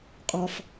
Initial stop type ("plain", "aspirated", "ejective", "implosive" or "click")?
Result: ejective